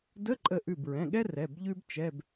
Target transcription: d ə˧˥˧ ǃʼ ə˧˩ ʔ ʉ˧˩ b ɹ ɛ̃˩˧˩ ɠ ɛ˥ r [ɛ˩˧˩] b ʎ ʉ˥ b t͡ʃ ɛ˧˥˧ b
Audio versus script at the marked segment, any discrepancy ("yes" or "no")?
no